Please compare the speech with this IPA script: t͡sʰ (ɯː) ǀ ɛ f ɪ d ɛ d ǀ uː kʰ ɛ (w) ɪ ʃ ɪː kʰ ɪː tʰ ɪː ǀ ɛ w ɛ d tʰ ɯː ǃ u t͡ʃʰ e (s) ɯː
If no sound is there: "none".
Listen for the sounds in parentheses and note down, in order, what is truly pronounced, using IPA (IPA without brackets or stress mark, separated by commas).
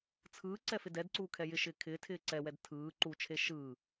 ɯː, j, ʃ